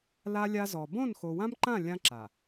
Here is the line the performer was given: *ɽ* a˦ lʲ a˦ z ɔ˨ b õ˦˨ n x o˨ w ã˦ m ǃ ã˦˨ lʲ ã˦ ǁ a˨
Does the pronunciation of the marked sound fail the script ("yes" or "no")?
yes